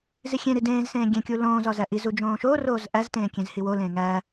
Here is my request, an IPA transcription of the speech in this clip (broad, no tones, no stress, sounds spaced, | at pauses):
z i xʲ ẽ ɾ i d ẽː z s ẽː ɡʲ ẽ kʲ u l õː z ɒ z æ ʔ i z u d͡ʒ õː ʃ oː r oː z ʔ æ z t ẽː kʲ ẽ z h i w o l ẽː ŋ æ